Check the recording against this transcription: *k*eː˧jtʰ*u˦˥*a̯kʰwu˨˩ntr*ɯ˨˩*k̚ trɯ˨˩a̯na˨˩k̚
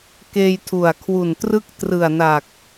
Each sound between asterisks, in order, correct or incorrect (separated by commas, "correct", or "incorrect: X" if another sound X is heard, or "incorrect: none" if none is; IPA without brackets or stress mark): correct, incorrect: u˨˩, incorrect: ɯ˥˩